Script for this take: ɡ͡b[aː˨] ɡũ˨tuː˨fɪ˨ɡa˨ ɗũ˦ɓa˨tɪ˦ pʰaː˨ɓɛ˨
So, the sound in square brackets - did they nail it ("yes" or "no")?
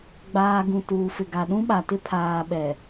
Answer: yes